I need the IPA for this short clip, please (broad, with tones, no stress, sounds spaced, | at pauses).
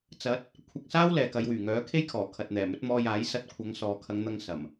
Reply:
t͡s ɐ˨˥ t̚ | kʷʰ ɐ˧ k̚ s aː˥ w l ɛː˨ k ɐ˨˧ j w yː˨˩ ŋ œː˨˥ kʰ e˥ j kʰ ɔː˨˩ kʰ ɐ˨ t̚ n̪ ɛː˨˩ m ɵ˨˥ t̚ m ɔː˧ j aː˨˥ j s ɐ˧ t̚ kʷʰ ɐ˨˧ ŋ s ɔː˨ kʰ ɐ˨˧ ŋ n̪ ɐ˧ ŋ s ɐ˨˩ m